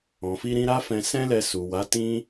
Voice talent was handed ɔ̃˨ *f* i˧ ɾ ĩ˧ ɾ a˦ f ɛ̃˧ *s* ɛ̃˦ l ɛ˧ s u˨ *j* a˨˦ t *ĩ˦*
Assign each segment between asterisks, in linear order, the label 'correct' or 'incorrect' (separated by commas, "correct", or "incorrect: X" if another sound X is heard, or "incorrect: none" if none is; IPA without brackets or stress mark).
correct, correct, incorrect: w, correct